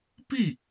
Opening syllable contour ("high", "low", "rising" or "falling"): falling